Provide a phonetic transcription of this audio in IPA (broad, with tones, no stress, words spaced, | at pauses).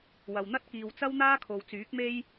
wɐ˨wn̪ɐ˥t̚ kiː˨wt͡sɐ˥w n̪aː˥kʰo˨wt͡syː˨˥k̚me˥j